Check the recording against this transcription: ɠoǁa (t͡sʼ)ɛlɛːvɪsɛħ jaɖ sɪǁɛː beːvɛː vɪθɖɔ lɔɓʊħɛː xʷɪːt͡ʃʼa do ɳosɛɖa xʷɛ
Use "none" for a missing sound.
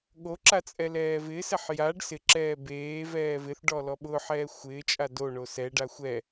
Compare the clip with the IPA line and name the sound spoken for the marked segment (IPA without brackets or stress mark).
t͡sʼ